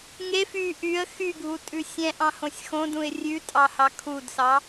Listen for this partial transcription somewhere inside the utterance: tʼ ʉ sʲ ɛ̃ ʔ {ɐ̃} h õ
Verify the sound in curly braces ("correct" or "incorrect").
incorrect